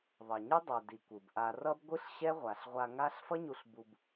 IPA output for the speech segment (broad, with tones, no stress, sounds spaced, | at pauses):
ðˤ ʌ˨ ɲ ɯ˦ dˤ ɛ˨ d i˨ kʷ ɯ˨ b ʔ a˧ r ʌ˦ b ɡʷ ɯ˦ ɬ ɕ ɛ˦ ʁʷ a˨ ɬ ʁʷ a˧ ŋ a˦ ɬ f ʌ˦ ɲ u˧ ɬ b u˧ b